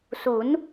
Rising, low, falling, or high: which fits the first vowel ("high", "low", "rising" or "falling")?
rising